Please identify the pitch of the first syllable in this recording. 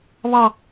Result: high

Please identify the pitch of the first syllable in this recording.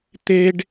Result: high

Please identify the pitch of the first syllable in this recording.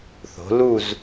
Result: rising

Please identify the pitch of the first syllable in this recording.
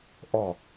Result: low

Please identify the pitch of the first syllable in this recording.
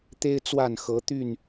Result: high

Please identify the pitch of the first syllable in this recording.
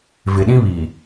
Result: low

